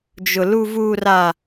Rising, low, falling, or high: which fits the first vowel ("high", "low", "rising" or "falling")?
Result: high